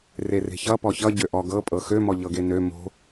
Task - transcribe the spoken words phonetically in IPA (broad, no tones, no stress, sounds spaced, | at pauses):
r e r e̤ ç ʌ p ɔ ç ʌ ɟ ø ʔ ɔ ɡ ɤ pʼ ɤ x ø m ɔ ʎ ɤ ɡ e n ø m o̤